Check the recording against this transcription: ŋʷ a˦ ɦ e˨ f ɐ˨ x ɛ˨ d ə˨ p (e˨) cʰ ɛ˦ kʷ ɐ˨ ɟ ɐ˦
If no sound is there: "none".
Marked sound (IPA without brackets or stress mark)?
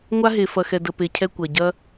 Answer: e˨